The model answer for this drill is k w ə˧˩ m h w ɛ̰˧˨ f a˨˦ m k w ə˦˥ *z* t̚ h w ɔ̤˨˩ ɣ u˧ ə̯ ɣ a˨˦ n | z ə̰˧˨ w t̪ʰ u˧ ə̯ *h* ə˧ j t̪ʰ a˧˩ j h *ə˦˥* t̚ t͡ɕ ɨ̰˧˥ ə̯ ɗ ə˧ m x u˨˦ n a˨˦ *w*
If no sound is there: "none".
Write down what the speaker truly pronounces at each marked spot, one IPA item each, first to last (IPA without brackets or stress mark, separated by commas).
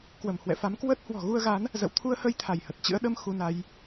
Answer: none, h, ə˨˩, j